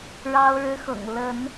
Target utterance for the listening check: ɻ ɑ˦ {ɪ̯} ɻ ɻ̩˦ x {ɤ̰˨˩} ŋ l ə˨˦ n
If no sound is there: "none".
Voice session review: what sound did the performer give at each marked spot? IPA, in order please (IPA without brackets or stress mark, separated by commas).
ʊ̯, ɤ̰˨˩